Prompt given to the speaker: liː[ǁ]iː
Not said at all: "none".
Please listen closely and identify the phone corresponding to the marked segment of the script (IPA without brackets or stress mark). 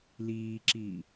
ǁ